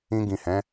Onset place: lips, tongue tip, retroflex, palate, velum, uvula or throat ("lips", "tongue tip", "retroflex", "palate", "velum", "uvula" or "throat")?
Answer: velum